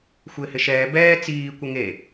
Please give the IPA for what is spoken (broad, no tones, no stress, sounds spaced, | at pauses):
xʷ ɪː h ɪ ʃ ɛː b ɛː t͡s iː kʷ ɪ ŋ e